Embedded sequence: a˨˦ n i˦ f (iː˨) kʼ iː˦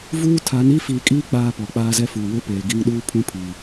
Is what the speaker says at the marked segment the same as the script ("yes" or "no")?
yes